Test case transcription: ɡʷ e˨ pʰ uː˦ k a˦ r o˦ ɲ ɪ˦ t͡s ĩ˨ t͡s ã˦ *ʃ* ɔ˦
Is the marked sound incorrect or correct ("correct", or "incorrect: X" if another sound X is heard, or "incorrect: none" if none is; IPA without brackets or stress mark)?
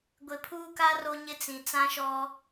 correct